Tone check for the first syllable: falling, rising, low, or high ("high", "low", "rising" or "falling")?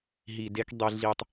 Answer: low